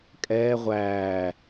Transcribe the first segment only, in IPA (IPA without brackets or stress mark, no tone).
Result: kʼ